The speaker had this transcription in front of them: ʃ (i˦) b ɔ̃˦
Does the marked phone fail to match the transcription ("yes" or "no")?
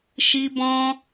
no